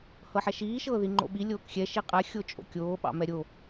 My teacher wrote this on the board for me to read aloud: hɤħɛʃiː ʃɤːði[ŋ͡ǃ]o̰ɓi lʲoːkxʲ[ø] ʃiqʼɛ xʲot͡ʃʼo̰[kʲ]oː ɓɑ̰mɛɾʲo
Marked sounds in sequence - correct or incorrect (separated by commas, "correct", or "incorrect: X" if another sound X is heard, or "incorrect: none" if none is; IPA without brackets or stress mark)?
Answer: correct, incorrect: ɛ, correct